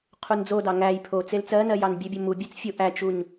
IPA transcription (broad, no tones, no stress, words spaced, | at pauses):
qʰund͡zodɑ ŋæj pʰo t͡selt͡sɜnɜ jɑnbʲebʲo mubʲet͡s fʲo ʔæt͡ʃuɲ